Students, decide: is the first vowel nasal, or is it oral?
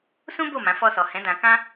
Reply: nasal